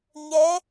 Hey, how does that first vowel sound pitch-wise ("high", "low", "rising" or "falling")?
rising